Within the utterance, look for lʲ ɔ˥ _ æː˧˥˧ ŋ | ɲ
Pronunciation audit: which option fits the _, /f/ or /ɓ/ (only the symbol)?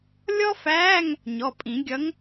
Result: f